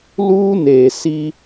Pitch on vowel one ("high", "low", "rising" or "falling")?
high